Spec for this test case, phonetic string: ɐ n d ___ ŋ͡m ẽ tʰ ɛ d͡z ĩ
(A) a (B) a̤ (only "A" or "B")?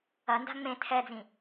B